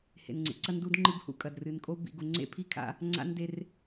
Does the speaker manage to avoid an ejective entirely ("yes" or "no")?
no